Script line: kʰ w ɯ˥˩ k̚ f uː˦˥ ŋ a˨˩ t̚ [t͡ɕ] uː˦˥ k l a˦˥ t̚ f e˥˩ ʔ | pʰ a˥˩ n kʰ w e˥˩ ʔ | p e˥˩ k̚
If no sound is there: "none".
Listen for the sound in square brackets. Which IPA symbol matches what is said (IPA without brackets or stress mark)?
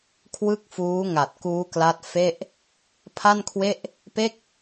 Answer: k